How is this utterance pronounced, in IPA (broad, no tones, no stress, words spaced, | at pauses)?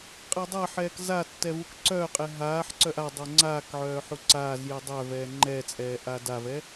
qʼɛdˤaħɛːk zatːɛ vukǀœːqʼɛ ɦaːħǀœʔ a dˤoŋ͡ǀaːkʕœː ħuǀaːzju dˤœvɛː ŋ͡ǃɛt͡sʼɛː ʔadavɛ